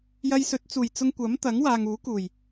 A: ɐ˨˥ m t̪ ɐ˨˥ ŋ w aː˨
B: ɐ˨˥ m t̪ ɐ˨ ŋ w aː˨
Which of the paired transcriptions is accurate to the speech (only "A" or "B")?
A